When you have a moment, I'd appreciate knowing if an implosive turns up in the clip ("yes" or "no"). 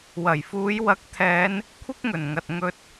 no